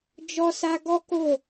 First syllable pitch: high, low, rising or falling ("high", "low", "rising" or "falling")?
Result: high